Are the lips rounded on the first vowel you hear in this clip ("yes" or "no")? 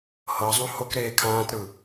no